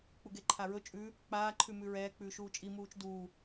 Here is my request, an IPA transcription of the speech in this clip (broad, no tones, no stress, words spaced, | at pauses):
k͡puɡeǃʰaɹɵ t͡ʃʼʉ | k͡paː ǃʰʉmʉɹɛː k͡pʉːʃuːt͡ʃʼi muːt͡ʃduː